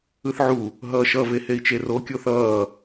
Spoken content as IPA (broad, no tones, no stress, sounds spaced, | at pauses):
ɯ θ ʕ u | ɦ ʌː ʃ ʌ v e h e i̯ t͡ʃ e r o kʲ o θ ʌː